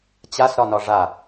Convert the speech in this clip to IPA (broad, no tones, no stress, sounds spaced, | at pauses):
t͡ɕ a s ɾ ɒ n ɒ ʐ a